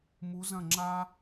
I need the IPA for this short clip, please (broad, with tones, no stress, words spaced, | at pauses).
mu˩˧zɐ̃˧˩ ŋ͡ǁa˧